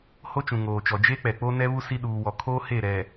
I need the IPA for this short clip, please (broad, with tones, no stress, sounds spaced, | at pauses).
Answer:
h o˦ t͡ʃ ũ˨ ŋ oː˨ t͡ʃ ɔ˨ d͡ʒ e˦ k͡p ɛ˨ k͡p o˦ n ɛ˦ β u˦ s i˦ ɗ uː˦ w ɔ˦ kʰ oː˦ h e˦˨ ɾ ɛ˨